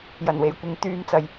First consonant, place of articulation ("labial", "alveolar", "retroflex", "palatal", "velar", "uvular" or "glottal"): palatal